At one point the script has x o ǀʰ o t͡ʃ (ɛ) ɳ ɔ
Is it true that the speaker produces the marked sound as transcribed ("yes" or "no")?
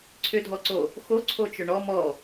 no